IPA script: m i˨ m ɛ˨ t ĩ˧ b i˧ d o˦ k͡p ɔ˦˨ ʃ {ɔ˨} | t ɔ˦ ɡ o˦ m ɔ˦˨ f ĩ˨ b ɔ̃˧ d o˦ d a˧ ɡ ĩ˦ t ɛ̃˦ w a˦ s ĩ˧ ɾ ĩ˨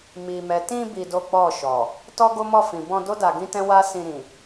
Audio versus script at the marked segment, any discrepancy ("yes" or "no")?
no